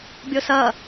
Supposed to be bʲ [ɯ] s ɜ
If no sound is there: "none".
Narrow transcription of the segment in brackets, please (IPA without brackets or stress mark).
ʊ